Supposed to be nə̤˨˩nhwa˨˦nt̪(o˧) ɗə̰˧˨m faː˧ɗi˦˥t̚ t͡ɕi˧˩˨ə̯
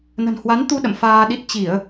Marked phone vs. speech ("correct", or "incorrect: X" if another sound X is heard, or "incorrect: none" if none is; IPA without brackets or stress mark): incorrect: u˧